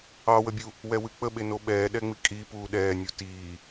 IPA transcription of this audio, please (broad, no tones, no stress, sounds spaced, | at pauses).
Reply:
ɑ w ə bʲ u | w ɛ w ɨ k͡p ə ɓ e n o ɓ ɛː ɗ ɛ ŋ͡m i kʼ i p uː ɗ ɛː nʲ u t iː